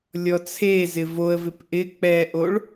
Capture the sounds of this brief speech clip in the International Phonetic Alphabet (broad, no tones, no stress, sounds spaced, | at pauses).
lʲ ɔ t͡sʰ e z ɪ v o ə̯ v ɪ p ʔ ɪ k͡p ɛ ʔ o ɭ